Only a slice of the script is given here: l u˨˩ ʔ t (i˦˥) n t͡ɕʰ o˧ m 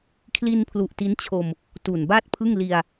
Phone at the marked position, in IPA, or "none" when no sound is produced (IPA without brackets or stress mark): i˦˥